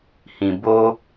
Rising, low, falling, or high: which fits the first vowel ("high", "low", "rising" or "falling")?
low